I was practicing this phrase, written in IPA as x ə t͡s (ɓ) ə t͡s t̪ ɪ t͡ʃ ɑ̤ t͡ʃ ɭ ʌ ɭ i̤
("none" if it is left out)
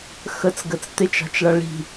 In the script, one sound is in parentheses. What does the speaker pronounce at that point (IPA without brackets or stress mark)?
ɡ